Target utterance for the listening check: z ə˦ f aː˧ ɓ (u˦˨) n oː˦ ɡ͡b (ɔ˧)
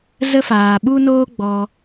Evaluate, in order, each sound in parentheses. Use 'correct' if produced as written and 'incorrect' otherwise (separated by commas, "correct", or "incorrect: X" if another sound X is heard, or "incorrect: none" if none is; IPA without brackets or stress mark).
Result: incorrect: u˦, correct